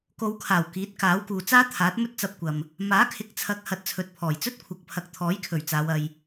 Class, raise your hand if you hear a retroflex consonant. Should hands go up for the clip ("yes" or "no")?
no